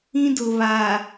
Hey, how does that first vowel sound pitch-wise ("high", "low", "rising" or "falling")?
high